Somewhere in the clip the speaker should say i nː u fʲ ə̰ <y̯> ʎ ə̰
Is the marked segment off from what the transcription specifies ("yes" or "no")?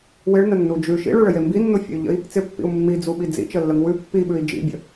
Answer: no